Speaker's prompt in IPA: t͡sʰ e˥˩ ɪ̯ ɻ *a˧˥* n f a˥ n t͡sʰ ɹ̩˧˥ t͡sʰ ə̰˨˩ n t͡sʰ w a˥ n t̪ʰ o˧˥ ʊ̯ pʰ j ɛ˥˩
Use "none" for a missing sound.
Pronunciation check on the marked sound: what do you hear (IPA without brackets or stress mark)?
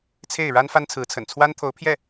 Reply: a˥